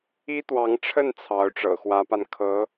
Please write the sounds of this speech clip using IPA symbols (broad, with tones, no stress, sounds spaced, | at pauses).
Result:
i˥ t̪ w ɑ˧˥ ŋ ʈ͡ʂʰ ə˥˩ n t͡sʰ ɑ˧˥ ʊ̯ ʈ͡ʂ ɤ̰˨˩ x w ä˧˥ p a˧ n kʰ ɤ˧˥